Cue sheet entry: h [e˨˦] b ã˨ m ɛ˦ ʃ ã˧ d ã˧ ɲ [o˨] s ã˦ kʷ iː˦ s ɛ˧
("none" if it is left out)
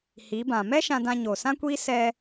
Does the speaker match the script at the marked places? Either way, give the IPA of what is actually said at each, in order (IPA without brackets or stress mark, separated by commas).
i˨˦, o˨